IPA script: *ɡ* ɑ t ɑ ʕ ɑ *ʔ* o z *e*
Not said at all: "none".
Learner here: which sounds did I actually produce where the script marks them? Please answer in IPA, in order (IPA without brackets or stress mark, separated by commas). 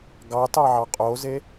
ɡ, qʼ, e